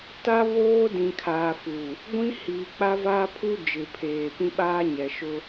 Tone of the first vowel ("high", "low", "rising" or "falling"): high